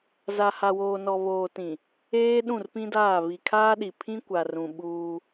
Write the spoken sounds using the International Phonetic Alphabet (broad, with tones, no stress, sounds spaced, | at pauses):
z a˨ h a˨ w oː˨ n ɔ˨ β oː˨ t ĩ˨ | eː˦ ɗ ũ˦˨ r p ĩ˦ d aː˦˨ β i˨ kʰ aː˦ ɗ i˨ pʰ ĩ˦ kʷ a˨ r ũ˨ ɓ uː˦